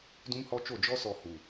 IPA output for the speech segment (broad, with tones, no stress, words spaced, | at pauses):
dũ˦mhɔ˦t͡ʃo˦˨ d͡ʒɔ˦sɔ˨ hu˨